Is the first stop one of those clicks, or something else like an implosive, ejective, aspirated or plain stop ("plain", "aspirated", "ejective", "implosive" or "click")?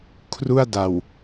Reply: aspirated